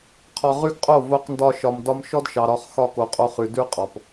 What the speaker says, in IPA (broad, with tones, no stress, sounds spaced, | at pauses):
qʰ ɒ˧ ʁ ʉ˦ ɡ qʼ o˦˨ v o˧ q n d ɒ˧ ʃ ɒ˨ m d ɒ˧ m ʃ ɔ˦ d ʃ ɑ˨ ɾ ɒ˧ χ x ɒ˧ k o˨ qʼ o˧ χ ʉ˨ d ʉ˦ qʼ ɒ˨ p